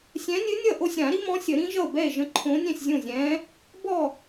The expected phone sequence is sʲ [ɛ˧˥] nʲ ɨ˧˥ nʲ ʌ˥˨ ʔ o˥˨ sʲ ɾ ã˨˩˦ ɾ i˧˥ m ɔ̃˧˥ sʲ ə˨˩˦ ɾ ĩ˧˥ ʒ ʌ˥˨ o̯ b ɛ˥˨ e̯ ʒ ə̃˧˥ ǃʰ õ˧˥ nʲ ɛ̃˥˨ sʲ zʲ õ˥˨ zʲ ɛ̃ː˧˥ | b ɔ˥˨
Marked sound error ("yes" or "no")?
yes